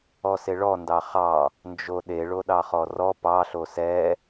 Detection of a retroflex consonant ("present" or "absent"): present